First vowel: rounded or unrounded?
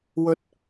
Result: rounded